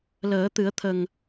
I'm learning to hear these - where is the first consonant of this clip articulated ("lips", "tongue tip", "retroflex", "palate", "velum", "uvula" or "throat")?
tongue tip